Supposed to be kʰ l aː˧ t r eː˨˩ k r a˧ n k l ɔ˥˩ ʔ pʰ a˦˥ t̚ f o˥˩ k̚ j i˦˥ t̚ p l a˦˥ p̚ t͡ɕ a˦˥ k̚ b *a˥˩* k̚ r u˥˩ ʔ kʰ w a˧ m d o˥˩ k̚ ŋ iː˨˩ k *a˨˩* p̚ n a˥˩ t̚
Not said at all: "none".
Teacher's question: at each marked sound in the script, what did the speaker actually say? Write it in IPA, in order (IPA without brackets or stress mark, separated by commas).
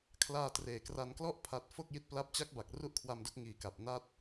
a˨˩, a˨˩